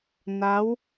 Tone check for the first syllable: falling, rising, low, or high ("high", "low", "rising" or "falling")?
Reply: rising